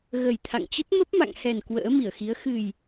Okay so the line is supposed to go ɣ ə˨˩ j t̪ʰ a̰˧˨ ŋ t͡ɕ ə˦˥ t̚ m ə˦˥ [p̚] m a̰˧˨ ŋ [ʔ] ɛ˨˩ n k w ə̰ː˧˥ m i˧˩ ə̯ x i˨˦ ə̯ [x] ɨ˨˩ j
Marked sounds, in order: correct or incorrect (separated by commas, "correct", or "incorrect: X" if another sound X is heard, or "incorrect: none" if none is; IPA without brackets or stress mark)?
correct, incorrect: h, correct